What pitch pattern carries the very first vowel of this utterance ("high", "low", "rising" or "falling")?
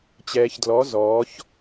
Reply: low